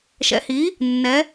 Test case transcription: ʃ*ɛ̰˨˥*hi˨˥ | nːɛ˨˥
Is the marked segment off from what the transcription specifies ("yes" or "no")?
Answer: no